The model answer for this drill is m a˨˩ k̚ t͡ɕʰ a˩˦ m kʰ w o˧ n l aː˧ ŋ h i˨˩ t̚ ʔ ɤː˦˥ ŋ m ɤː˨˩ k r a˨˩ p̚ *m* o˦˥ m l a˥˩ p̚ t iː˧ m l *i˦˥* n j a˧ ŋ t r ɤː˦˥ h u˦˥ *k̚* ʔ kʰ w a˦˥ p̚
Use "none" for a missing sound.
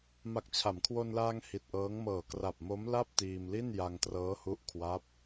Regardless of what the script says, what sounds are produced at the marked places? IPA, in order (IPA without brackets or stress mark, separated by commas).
m, i˥˩, none